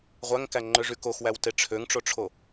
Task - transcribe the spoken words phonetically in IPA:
ʁʷæŋkæŋ͡ǃøʐy koxwæwte ʈ͡ʂʰøŋʈ͡ʂoʈ͡ʂʰo

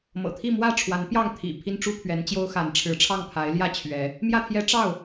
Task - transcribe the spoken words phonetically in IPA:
mɤ̰˨˩t̪ʰi˥˨mwä˥˨ ʈ͡ʂʰwa˨˦npjɑ˥˨ŋt̪ʰḭ˨˩ pʰi˦nʈ͡ʂu˦pʰɥɛ˨˦nt͡ɕjo˦ʊ̯ xa˨˦nʈ͡ʂʰɻ̩˨˦ʈ͡ʂʰɑ˥˨ŋ pʰa˨˦ɪ̯ljä˥˨t͡ɕʰɥɛ˨˦ | mjä˥˨t̪ʰjɛ˦ ʈ͡ʂɑ˥˨ʊ̯

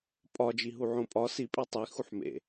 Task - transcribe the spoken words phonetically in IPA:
pʼɒd͡ʒi ɦuʕõpʼɒ si pʼitˤi xuħmḛ

